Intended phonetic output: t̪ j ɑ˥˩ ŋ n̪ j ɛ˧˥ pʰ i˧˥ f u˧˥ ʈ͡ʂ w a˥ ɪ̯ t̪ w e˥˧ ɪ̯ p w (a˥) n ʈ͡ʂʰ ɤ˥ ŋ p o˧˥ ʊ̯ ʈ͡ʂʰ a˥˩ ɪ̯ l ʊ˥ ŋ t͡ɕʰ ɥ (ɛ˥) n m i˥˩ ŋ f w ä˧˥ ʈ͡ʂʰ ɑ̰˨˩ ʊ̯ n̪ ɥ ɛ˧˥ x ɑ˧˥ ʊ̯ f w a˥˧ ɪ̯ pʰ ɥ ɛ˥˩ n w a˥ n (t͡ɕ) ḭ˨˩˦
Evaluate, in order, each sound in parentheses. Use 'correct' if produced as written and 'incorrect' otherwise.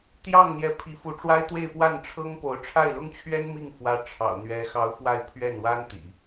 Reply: incorrect: a˥˩, correct, incorrect: t̪

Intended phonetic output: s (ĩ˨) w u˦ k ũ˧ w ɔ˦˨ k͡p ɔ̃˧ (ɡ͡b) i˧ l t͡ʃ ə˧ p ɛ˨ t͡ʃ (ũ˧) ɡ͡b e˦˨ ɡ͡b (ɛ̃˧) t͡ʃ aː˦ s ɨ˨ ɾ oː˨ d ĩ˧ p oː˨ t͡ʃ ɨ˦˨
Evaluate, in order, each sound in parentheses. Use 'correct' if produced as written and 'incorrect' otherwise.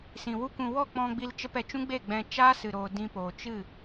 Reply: correct, correct, incorrect: ũ˦, correct

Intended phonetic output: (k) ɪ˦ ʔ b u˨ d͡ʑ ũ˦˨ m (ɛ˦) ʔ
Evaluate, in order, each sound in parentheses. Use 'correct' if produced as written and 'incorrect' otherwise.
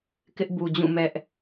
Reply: correct, correct

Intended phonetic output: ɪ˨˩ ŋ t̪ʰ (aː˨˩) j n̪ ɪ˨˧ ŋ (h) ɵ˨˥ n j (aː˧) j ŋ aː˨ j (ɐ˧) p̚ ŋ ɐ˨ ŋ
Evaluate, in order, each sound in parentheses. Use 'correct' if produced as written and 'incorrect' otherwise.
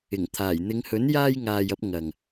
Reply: correct, correct, correct, correct

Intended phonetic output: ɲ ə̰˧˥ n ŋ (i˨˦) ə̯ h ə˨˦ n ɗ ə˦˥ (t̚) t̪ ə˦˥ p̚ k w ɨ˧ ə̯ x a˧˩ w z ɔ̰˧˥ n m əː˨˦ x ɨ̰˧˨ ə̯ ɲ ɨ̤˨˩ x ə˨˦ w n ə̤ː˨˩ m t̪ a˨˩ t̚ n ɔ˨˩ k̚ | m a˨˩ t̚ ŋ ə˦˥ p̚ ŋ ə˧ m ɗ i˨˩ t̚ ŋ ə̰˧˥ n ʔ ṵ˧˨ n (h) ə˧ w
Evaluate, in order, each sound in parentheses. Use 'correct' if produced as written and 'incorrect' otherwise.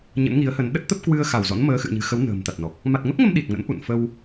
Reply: correct, correct, incorrect: f

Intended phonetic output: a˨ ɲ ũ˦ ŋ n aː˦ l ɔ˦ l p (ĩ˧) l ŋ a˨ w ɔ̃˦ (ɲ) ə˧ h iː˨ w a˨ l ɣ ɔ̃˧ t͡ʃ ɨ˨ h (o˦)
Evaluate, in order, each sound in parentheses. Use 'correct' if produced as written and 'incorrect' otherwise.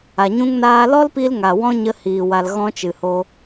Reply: incorrect: i˧, correct, incorrect: o˧

